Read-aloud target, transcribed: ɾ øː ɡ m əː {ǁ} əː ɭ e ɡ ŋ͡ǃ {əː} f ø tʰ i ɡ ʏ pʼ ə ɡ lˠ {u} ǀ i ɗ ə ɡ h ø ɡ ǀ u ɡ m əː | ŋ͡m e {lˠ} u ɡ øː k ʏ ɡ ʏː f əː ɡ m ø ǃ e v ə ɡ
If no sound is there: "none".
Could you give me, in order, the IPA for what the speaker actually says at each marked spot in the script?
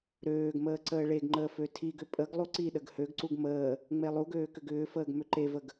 ǀ, əː, u, lˠ

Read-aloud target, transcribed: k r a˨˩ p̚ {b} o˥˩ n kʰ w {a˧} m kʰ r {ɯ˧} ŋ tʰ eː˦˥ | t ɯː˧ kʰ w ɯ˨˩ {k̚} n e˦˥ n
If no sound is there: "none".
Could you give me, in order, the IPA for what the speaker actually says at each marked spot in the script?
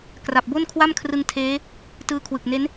b, a˥˩, ɯ˧, k̚

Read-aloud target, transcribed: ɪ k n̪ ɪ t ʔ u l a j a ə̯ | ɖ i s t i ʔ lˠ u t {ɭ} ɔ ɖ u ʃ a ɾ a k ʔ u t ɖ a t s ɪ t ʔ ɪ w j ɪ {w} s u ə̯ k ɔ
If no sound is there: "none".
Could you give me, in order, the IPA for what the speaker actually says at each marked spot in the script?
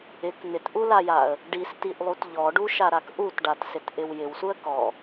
ʎ, w

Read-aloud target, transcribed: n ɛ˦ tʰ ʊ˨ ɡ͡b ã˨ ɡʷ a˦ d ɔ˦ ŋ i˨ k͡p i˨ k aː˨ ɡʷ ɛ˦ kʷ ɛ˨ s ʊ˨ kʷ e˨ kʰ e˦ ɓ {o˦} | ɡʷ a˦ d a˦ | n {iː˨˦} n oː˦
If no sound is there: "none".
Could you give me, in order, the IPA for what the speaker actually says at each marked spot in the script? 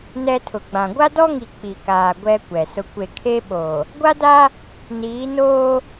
o˨, iː˨˦

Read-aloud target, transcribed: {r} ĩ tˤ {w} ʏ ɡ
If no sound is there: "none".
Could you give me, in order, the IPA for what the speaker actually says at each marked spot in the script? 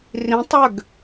r, w

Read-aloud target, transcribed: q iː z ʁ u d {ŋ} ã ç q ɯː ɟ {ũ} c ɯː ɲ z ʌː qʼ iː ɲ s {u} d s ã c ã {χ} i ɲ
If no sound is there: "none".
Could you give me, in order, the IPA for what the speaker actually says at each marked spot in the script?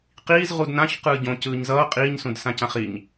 n, õ, ũ, χ

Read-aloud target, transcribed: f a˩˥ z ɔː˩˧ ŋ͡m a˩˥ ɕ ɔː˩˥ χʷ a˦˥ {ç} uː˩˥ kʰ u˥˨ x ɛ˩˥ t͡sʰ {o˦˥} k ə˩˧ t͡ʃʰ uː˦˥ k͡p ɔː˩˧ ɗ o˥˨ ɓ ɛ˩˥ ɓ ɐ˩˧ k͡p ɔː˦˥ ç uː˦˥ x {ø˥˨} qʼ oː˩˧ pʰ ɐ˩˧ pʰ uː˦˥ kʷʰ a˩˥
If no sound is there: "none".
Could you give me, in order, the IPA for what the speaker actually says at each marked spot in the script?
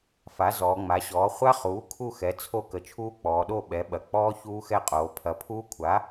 χ, o˦˥, ɛ˥˨

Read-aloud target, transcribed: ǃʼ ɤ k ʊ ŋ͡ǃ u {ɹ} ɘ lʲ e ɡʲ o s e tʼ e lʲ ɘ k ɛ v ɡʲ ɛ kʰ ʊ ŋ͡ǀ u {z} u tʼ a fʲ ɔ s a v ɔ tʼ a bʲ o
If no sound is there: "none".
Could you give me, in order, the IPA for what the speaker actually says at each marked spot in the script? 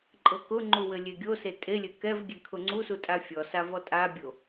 w, s

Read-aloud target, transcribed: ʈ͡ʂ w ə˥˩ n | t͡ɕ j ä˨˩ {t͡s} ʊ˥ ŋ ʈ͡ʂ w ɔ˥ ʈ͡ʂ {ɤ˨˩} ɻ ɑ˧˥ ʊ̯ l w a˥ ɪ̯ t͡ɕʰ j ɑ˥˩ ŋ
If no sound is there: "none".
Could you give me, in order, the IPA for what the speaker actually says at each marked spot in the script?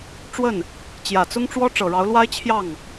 t͡s, ɤ˨˩

